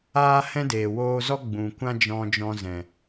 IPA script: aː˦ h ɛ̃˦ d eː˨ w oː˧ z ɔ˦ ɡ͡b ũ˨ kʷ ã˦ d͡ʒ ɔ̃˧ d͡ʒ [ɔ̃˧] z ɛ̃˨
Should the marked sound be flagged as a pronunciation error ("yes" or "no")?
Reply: no